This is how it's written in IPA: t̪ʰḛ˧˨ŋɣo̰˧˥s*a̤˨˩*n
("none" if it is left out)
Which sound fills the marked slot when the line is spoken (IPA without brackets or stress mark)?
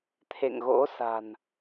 a̤˨˩